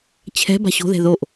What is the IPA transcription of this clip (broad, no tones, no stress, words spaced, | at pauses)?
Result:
t͡ɕʰɛ̤ ba̤ɕo̤ðɛ̤ ðoʔ